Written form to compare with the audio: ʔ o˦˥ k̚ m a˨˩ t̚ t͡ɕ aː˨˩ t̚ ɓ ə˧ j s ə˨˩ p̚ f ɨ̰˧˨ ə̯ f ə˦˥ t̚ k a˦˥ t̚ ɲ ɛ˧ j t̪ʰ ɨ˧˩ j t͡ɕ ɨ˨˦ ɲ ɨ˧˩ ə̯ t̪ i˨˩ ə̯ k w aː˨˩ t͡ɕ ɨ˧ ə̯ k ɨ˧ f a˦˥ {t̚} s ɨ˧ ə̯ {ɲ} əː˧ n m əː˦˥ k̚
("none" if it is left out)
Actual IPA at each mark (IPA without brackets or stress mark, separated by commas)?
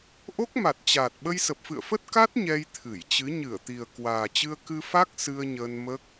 k̚, ɲ